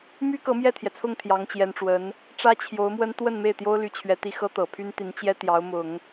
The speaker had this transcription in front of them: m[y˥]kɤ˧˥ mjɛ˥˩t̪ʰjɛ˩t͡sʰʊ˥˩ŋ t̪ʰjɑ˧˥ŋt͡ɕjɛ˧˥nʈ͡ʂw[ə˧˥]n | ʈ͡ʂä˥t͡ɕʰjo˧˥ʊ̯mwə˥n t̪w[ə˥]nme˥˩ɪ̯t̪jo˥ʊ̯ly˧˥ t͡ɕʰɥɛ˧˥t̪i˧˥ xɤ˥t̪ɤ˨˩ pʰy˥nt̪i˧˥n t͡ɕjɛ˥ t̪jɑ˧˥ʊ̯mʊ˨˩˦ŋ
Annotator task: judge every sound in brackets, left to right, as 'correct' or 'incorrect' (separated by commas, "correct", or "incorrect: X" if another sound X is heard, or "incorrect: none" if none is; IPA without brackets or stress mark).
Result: correct, correct, incorrect: ə˥˧